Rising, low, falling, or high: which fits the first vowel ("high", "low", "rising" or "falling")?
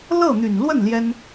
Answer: falling